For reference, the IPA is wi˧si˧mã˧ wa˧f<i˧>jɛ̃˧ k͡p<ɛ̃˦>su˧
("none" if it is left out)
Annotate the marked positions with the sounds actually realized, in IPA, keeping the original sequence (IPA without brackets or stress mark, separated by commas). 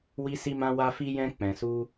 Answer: i˧, ɛ̃˨